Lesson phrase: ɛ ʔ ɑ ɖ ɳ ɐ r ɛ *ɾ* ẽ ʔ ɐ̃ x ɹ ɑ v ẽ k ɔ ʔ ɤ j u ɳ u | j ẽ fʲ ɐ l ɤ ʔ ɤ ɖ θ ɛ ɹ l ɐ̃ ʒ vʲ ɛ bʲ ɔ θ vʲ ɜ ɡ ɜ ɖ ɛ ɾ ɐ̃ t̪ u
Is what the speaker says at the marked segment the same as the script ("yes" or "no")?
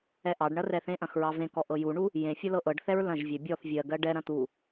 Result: no